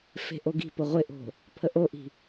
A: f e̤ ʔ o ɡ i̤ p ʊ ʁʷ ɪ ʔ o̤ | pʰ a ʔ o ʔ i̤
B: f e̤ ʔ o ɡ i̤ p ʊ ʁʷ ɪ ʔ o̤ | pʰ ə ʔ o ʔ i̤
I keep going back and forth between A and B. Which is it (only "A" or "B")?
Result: B